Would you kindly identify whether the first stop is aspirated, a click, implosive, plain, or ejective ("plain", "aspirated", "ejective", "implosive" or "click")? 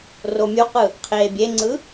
plain